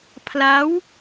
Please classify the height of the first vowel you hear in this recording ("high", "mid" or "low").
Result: low